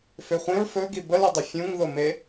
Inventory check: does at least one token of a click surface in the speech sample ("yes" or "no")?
no